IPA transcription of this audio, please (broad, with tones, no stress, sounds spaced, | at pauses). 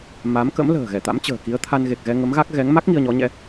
m a˨˦ m k ə̰˧˥ m l ə̤ː˨˩ ɣ ɛ˧˩ t̪ a̰˧˥ m t͡ɕ ə̤ː˨˩ k i˨˦ ə̯ t̪ʰ a˧ n ɣ e˨˩ k̚ ɣ ɛ˧ ŋ ə˨˦ m ɣ a˦˥ k̚ ɣ ɛ˨˦ ŋ m a˦˥ k̚ ŋ i˧ ə̯ ɲ ɔ˨˦ ɲ ɛ̰˧˥